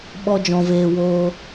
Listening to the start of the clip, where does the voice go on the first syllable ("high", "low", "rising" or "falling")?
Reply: high